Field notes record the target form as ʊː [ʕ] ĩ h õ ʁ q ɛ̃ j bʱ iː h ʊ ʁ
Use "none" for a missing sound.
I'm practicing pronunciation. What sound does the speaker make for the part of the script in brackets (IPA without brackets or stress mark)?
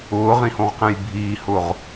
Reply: ʁ